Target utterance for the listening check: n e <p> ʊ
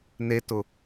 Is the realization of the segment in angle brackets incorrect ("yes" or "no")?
yes